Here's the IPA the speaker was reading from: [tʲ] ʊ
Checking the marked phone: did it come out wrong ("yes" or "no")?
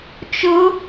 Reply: yes